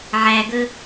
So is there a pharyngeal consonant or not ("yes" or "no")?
yes